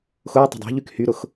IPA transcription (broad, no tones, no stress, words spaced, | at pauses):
xʊː tˤə̤dˤo̤ʎyk hyɾʊx